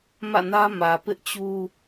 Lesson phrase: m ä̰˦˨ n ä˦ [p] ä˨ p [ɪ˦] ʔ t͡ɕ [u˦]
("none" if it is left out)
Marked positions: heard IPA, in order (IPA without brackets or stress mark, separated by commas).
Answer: m, ɪ˦, u˦